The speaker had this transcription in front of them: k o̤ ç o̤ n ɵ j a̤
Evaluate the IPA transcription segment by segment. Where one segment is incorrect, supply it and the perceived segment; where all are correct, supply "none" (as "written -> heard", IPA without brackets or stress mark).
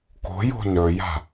ç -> j